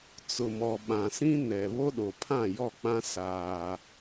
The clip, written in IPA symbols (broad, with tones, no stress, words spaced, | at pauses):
t͡sʊ˨mɔ˨ ɓã˨sĩ˦nɛ˨ βo˦ɗo˨pʰã˦˨jɔ˦˨ k͡pã˦ saː˦